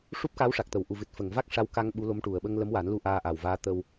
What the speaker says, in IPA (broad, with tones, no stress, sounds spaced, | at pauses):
ʂ u˦˥ p̚ k a˧˥ w ʂ a˨˩ k̚ t̪ ə˨˩˨ w ʔ u˨˩ v ɨ˨˩ t̚ f ə˨˩˨ ŋ v a˦˥ k̚ ʂ a˧˥ w k a˧ ŋ ɓ u˧˥ l o˧˥ m ʈ u˨˩ ə̯ ɓ ə˧ ŋ l ə˧˥ m w aː˨˩˦ n l u˧ ʔ aː˧ ʔ a˨˩ w v aː˧˥ t̪ ə˧ w